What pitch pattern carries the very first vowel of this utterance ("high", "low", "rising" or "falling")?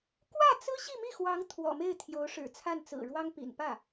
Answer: falling